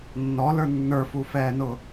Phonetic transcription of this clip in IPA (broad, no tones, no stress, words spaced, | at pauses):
nːɔlə˞ nːə˞fufɛːnʊ